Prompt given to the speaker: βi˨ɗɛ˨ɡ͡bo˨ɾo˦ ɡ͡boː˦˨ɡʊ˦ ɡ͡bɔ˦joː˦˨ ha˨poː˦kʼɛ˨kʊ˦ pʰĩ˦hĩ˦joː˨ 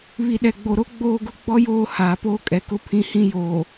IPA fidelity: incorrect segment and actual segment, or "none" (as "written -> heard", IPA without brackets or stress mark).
a˨ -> aː˨